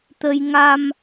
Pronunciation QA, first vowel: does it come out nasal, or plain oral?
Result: oral